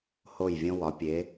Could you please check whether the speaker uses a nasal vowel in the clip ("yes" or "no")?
yes